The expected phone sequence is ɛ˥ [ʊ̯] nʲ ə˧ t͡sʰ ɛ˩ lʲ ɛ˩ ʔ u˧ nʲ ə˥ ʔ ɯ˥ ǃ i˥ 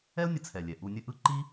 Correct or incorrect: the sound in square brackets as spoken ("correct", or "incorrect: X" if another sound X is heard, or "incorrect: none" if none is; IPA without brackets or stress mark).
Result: correct